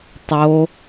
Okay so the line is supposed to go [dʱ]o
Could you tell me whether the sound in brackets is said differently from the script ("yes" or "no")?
yes